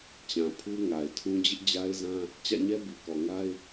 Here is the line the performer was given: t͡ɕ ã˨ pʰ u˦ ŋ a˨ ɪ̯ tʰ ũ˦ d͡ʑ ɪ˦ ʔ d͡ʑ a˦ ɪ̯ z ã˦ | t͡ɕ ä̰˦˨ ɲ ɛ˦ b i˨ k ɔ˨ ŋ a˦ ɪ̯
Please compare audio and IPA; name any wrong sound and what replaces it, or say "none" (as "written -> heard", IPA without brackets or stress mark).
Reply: none